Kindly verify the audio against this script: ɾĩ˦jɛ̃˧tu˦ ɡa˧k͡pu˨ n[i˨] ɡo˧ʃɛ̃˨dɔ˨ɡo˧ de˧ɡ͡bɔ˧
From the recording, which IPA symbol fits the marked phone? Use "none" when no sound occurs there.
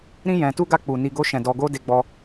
i˨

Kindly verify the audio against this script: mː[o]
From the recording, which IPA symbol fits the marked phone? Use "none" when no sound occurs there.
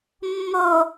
o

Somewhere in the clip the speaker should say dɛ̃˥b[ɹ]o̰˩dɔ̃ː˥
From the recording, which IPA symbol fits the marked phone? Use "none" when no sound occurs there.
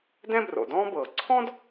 r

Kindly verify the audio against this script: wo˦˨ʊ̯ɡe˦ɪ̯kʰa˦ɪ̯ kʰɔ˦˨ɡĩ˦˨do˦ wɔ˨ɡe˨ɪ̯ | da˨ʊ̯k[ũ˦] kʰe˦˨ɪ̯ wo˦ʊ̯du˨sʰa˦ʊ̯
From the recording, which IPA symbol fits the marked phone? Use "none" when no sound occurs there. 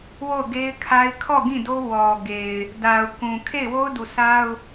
ũ˨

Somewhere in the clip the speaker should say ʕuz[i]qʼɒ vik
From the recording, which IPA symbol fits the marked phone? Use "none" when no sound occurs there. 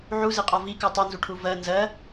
i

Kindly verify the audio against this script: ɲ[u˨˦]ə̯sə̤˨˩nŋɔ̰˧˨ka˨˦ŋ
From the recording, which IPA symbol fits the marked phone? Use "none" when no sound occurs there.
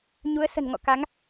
u˨˦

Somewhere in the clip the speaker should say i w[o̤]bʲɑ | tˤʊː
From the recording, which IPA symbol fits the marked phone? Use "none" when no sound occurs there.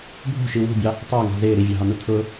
ṳ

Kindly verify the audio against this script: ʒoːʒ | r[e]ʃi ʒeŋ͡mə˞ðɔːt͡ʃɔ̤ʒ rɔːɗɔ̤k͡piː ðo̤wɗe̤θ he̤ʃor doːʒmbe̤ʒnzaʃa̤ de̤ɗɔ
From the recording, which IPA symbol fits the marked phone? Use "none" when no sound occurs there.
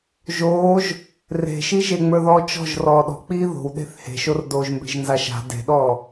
e̤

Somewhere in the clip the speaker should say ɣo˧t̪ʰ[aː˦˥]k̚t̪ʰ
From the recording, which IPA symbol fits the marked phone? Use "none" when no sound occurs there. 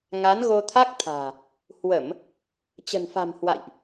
a˦˥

